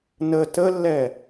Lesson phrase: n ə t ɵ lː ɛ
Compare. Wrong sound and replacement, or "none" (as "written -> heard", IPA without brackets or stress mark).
ɵ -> ə